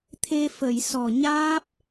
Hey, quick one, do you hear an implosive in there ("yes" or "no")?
no